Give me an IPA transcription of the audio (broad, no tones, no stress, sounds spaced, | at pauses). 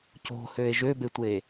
c o̤ h ø e̯ ʒ ø b e tʷ e